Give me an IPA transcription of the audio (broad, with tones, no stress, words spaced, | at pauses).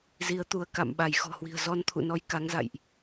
zi˨˦ə̯t̪u˧˩ə̯ka̰˧˨m ɓa˧˩jxɔ̤˨˩hwi̤˨˩ə̯ zɔ˧nt̪ʰṵ˧˨ nɔ˧jka˨˦ŋza̰˧˨jʔ